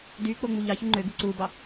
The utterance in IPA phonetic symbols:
d y k͡p o ŋ͡m u ʎ ɑ ç u ŋ͡ǃ ø ɡ u ǀ u b ɑ

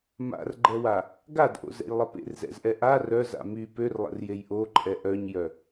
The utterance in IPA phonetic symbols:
m a̰ r ɡ͡ǃ ɛ w a | ɡ a d ʔ o̰ z ɛ̰ j lˠ ə p ḛ r z ɛ̰ z ʔ ɛ ʔ a r œ z a̰ m y p ø r lˠ ə̰ r j e j ʔ o ǃʼ ɛ ʔ œ ɲ j œ

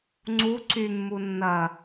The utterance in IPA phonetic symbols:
ŋ͡ǀ u ǀ y mː u nː ɐ

